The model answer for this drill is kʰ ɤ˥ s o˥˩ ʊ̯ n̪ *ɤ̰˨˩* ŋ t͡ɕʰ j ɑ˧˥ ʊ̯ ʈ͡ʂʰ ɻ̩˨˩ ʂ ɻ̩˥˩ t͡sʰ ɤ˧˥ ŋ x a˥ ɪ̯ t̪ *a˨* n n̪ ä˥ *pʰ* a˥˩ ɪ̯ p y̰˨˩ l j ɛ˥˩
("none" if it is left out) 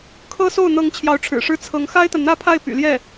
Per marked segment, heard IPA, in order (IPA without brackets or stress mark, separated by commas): ɤ˧˥, a˨, pʰ